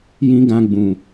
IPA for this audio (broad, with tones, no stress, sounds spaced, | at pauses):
j ĩ˦ ɡ ã˧ ɡ͡b ũ˨